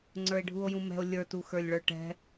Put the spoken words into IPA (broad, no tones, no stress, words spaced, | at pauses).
ŋ͡ǀə˞e̯ɖʱuo̯jũmɛ̤o̯ lʲə˞tuxə˞lʲɭə˞ ʈɛ̤